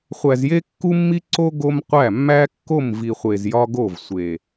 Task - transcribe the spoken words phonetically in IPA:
χʷæ˨zje˦kːu˦mːi˦ ǀo˦ ɡo˦mqʷæ˦˨ mːæ˦kːo˦˨mvi˨χʷe˨z jɒ˦ɡo˦˨vsʷe˨

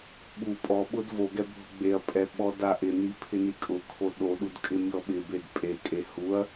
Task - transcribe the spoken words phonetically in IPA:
ɓu pʼɔɓʊd voɡɛ bʱʊɡ͡beɐ̯pʼɛ ɓɔdaʔɪni pʰɪnikʼʊkʰo ɗoɗud kʼɪmʲɔɓɪbed pʼekʼe huɐ̯

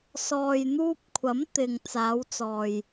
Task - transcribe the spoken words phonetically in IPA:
sɔː˨jn̪uː˧p̚ kʷʰɐ˨˥m t̪ɪ˨ŋ t͡saː˨˧wt͡sɔː˨j

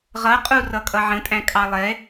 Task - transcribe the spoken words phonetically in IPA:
ʁʌqʼurʌkʼʌ ʕə̃tʼæ̃kʼɑ lˠɛ

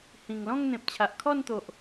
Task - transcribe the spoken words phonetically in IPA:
hĩ˨˩ŋlɔ̃˥˧ŋ n̪ẽ˨p̚t͡ɕʰa˨ʔkʰɔ˥˧nt̪o˨ʔ

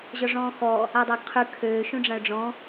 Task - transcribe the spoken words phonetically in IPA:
ʑɔʐɔ̃ːxɔ | adˤaɡqʰʉ kʰøː ʃũɖ͡ʐãʊ̯ɖ͡ʐɔ̃

